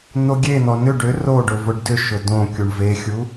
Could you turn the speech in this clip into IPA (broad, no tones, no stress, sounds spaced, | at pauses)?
n̪ o ɡʲ e n̪ ɔ n ʏ ɖ ʏ r o ɖ ʊ v ʊ ɖ d ʏ ʃ ʊ d õ kʲ u ɳ v e xʲ u